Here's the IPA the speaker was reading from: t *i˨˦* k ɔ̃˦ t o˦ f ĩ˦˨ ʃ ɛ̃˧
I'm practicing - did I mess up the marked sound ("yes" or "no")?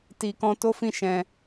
yes